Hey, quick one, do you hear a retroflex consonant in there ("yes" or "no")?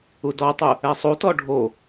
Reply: yes